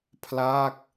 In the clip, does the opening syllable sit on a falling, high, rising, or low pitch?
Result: falling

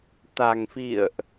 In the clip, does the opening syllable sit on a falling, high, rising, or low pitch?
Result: low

